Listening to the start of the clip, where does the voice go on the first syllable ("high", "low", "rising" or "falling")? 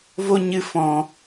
high